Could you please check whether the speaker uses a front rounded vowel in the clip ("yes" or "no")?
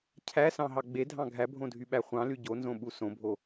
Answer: yes